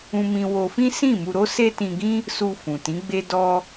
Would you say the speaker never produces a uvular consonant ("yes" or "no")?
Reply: yes